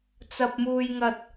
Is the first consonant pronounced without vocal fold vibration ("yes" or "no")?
yes